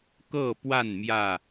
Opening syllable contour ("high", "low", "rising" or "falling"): falling